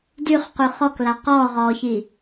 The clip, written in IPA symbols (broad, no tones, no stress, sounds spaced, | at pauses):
d y χ q y χ ɔ k l a q ɔː ʁ ɔː ç i